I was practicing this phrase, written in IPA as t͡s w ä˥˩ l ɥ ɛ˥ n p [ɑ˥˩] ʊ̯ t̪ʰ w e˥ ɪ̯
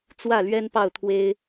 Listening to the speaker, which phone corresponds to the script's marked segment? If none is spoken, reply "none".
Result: ɑ˥˩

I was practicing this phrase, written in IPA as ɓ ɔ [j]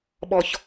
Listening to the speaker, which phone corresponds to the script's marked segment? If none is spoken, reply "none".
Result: ç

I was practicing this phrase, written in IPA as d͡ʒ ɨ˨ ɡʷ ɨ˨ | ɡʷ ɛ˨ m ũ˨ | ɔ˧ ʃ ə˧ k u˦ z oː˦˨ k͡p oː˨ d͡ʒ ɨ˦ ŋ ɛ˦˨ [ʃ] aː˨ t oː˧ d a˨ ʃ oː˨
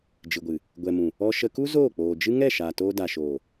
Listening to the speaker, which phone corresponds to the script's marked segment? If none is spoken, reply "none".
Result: ʃ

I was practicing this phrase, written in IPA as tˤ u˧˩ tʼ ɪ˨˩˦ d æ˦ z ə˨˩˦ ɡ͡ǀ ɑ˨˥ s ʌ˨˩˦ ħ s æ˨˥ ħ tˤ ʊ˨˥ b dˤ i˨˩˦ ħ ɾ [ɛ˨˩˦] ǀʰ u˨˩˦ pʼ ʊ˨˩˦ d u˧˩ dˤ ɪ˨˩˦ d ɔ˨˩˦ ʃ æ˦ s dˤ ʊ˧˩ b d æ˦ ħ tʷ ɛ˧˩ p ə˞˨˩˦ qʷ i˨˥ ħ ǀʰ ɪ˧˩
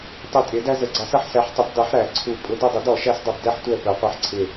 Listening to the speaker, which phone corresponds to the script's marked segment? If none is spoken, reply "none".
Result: æ˨˩˦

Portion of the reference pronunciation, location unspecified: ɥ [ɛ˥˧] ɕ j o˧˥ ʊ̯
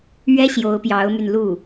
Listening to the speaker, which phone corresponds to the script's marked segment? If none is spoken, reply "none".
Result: ɛ˥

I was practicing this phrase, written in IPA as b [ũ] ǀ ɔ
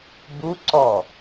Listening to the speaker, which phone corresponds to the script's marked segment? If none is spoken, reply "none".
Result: u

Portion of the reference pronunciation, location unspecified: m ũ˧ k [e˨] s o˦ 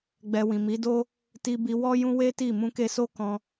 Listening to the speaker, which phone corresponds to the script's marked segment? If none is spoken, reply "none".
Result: e˧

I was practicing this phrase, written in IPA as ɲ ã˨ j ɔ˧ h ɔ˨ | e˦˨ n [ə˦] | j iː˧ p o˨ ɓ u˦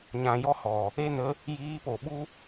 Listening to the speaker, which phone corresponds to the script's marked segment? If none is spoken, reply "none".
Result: ə˦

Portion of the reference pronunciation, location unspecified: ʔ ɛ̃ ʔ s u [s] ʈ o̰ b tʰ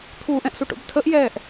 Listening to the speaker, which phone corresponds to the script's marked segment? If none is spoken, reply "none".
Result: none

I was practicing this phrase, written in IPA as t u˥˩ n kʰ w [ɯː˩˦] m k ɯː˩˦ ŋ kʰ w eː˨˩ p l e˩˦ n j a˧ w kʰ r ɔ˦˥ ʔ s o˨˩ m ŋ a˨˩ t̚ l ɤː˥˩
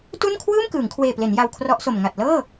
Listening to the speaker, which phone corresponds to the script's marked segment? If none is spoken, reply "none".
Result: ɯː˥˩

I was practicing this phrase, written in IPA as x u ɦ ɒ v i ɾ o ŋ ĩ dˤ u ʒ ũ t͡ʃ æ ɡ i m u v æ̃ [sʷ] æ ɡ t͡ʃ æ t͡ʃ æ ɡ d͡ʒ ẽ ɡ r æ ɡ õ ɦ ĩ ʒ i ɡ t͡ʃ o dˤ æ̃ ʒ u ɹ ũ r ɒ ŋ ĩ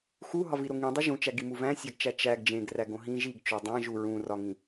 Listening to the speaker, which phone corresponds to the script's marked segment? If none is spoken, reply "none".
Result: sʲ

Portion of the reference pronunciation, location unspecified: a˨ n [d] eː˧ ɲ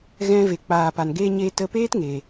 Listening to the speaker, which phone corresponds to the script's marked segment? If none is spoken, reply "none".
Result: ɡ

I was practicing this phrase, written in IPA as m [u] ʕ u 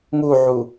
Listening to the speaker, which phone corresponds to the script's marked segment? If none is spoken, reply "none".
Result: u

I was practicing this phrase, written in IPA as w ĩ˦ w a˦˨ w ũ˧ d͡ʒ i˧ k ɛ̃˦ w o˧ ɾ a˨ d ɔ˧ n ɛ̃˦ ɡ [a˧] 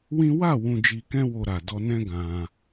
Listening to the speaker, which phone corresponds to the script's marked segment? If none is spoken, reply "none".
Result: ã˧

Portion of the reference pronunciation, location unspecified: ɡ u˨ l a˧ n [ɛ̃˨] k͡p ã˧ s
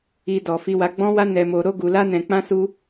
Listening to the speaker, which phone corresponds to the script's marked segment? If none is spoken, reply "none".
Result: ɛ̃˨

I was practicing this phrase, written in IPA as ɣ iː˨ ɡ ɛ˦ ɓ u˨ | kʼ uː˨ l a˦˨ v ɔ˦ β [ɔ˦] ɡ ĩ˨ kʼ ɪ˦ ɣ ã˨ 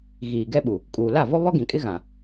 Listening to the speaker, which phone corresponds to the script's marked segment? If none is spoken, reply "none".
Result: ɔ˦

